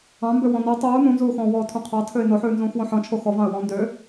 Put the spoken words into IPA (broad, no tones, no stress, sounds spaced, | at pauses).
ɑ̃ m b ø w ɔ̃ n o tˤ uː n ũ n z uː x ɔ̃ː w ɔː tʰ ũ qʰ ɑ tʰ ø ɪ̯ n o ħ ʉː n z ũː x w õ ħ ɔ̃ t͡ʃʰ o x ɔ v ɑ̃ ə̯ w ɔ̃ n d ø